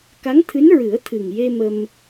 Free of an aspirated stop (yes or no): no